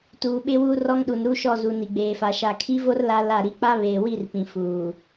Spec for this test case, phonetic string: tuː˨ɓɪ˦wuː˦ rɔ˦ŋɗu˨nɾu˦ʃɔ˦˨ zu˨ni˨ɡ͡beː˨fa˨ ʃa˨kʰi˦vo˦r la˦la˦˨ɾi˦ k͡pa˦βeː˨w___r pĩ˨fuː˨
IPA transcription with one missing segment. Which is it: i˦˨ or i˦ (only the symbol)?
i˦˨